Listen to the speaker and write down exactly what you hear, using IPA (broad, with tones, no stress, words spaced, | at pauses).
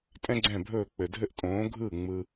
tʼɛ̃˥ɡ͡ǀɛ̃˥˩bʱɵː˥˩k͡pɘ˩ dʱɘ˥ʔtʼõː˩˥ ɡʱɯ˥˩ ŋ͡mɯ˧